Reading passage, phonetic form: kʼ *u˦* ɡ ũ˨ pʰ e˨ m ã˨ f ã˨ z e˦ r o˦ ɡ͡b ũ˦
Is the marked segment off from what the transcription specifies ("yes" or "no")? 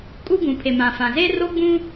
no